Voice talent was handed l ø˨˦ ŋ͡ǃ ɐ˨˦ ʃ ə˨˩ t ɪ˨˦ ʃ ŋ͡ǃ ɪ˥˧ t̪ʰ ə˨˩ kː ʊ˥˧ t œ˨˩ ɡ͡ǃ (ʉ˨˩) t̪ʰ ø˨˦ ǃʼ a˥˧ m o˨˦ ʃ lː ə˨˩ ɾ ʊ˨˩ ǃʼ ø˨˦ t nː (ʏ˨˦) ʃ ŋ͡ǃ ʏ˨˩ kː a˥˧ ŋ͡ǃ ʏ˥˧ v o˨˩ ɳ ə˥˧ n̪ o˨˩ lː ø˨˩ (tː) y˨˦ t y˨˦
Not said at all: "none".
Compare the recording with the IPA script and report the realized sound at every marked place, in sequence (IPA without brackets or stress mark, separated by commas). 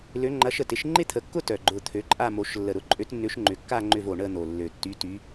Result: ʊ˨˩, ʏ˨˦, tː